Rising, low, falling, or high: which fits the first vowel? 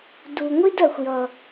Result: low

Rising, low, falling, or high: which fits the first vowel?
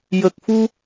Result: low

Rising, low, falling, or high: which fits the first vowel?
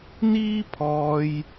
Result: high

